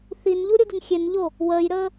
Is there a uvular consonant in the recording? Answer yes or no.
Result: no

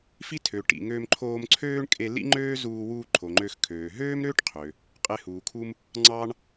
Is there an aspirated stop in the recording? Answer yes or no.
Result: yes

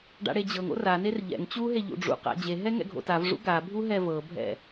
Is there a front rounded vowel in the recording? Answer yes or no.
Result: no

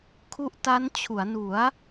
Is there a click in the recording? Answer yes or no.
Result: no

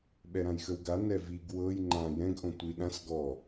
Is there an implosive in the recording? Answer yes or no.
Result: yes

